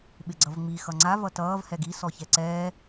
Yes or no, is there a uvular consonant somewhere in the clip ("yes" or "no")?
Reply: no